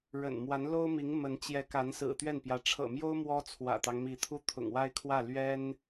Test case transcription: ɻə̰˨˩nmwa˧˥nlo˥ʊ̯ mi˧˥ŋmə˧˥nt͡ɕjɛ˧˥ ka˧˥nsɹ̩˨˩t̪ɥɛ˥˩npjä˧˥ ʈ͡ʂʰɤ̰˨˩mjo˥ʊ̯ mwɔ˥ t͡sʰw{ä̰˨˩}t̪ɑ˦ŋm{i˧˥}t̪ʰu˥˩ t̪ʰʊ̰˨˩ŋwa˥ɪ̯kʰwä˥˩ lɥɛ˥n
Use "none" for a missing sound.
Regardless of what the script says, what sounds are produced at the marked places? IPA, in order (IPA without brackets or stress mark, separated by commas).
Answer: ä̰˨˩, i˧˥